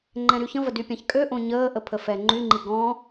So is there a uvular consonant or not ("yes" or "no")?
no